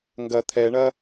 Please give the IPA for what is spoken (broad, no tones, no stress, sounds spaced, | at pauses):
ŋ ɡ ɐ t̪ʰ ɛ ɳ ɐ